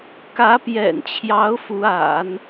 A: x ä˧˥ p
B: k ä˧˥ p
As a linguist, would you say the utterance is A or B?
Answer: B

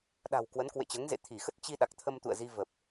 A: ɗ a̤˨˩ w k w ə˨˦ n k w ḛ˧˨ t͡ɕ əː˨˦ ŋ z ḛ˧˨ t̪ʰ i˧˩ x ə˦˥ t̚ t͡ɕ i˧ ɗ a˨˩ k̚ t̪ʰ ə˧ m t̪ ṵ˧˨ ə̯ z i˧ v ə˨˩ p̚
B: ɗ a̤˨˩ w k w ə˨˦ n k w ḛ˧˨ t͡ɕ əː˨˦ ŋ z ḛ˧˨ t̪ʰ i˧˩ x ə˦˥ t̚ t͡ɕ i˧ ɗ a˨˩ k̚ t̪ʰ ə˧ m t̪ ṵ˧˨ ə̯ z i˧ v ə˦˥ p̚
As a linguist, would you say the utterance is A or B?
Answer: A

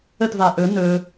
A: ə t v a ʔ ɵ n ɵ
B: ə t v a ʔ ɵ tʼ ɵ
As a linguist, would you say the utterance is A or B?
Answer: A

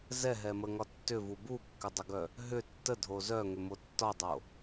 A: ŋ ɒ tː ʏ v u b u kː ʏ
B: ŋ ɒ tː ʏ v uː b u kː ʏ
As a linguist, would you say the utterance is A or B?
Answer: A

